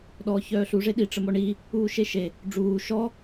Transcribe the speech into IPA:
ɗ ɔː ç œː ɬ u ʐ e ɗ i ʈ͡ʂ ə m ɔ ɳ i | uː ʃ e ʃ e | ɖ͡ʐ uː ʃ ɔ

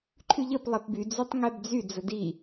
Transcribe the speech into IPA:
ǃʰ y ʎ ə p lˠ ɛ p b y d͡z y tˤ ŋ ɛ b d͡z y d͡z ə d i

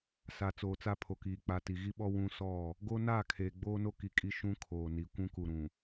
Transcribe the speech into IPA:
s a˨ t͡s oː˨ t͡s a˦ pʰ o˨ k iː˨ k͡p a˨ t i˨ ɣ i˦ ɓ ɔ˦ w ũ˦ s ɔ˦˨ | ɡ o˦ n aː˦˨ kʰ eː˨ ɡ͡b oː˦ n o˦ k i˨ kʼ i˦ ʃ ũ˦ kʰ oː˨ n i˨ kʷ ũ˦ k u˨ ɾ ũ˨

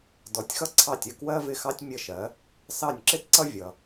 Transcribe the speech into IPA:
d ɔ˩˥ tʲ x ʌ˥ ǀʰ ɑ˥˩ tʲ ə˥˩ k w ɜ˥ v ɪ˥˩ x ɑ˥ tʲ mʲ ə˥˩ ʃ ɜ˩˥ | s ɑ˥˩ nʲ ǁ ɪ˥ t ǀ ʌ˥ vʲ ʌ˩

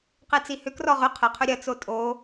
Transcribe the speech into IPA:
q e t͡s i h ʏ k r ɔ ʁ ʏ qʰ ə qʰ ʏ ɾʲ ɐ t͡s o tʼ o

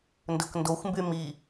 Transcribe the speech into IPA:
n d ɵ k n d o xʷ m b y m i

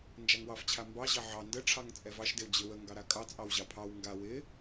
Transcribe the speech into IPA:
n d͡ʒ a ŋ w ɑ f t͡ɕʰ a m b ɑ ʑ ɑ ʕ ɑ n d ə ʈ͡ʂʰ ɑ ŋ t͡sʼ ɛ v ɑ ʃ d ɪ w d͡ʑ ɪ w ə ŋ ɡ ɑ ɾ a kʼ ɑ t͡sʼ ɑ w ʑ ɑ pʰ ɑ w ŋ ɡ a w ɪ

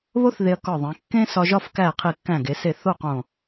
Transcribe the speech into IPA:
β o˥ θ ð e˧ ɐ̯ k ɒ˧˩ ðˤ ẽ˩˧ kː ẽ˥ s ɒ˧ ʒ ɒ˥˧ f k æ˧˩ qʰ i˧˩ kː æ̃˧˩ ɡ e˩˧ s e˧˩ θ o˥˧ q õ˧˩

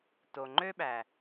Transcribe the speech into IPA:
t o˩ ŋ͡ǃ ø˥ ɓ æ˩

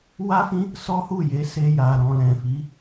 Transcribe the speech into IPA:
w a˦ f ĩ˦ | s ɔ˦ h u˦˨ j e˨˦ s e˧ j a˨ ɾ ɔ̃˨ l ɛ̃˨ f i˨˦

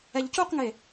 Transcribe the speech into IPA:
ɛ ʎ c u q ŋ e

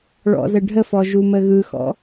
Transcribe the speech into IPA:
ɭ ɔ̰ z ə ɖʱ ə f ɔ ʒ u m ə ɣ ɯ x ɔ̰

